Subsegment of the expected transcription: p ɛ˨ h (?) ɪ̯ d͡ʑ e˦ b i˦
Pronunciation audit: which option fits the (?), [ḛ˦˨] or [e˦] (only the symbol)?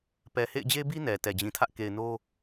ḛ˦˨